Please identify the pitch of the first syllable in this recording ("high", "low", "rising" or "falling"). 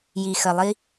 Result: low